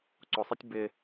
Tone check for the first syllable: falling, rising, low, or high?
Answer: low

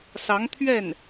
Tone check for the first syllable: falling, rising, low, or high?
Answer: rising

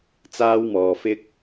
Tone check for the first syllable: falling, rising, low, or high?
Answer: high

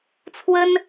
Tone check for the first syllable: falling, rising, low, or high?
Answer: high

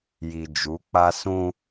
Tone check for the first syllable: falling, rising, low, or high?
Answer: low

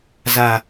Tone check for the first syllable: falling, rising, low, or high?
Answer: low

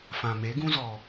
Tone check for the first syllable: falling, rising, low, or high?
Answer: low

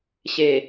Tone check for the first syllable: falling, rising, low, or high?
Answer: low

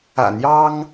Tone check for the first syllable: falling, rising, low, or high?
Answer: low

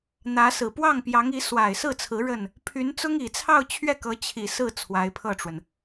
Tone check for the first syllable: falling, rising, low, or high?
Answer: rising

